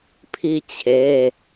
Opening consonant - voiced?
no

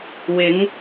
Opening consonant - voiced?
yes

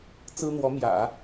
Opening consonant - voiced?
no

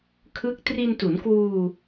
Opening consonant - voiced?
no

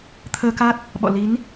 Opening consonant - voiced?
no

